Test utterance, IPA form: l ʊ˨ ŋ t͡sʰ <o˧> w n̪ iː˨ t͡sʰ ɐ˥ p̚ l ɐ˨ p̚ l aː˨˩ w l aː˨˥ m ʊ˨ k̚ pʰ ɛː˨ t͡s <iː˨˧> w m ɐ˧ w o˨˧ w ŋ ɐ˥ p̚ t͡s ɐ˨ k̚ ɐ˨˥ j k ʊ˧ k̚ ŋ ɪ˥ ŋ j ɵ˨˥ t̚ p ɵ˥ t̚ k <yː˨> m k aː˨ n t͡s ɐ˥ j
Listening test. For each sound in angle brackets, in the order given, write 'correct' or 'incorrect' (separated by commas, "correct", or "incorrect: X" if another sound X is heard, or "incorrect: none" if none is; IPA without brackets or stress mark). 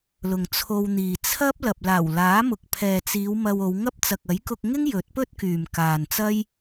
correct, correct, correct